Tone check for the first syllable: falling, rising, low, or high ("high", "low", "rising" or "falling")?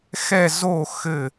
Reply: falling